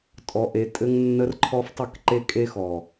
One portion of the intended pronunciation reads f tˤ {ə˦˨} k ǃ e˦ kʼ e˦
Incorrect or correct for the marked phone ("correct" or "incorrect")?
correct